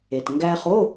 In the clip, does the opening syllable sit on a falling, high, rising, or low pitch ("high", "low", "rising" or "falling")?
low